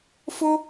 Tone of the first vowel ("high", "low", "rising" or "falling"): high